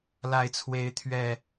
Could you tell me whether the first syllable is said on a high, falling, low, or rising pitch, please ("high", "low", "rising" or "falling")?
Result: low